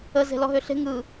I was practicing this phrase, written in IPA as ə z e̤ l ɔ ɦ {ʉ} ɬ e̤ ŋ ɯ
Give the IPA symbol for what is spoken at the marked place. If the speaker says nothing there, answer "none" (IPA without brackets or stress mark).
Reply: ø